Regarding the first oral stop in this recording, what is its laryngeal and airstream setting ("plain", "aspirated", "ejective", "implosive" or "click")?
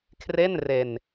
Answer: aspirated